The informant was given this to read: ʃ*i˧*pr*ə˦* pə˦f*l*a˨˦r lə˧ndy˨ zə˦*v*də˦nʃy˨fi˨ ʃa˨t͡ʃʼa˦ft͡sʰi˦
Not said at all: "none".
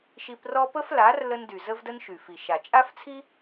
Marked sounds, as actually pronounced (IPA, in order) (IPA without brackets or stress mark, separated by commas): i˧, ɔ˦, l, v